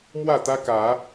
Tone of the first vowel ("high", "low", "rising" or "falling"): falling